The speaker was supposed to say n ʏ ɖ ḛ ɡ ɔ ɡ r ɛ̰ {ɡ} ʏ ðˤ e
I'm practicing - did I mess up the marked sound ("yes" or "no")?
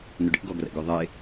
no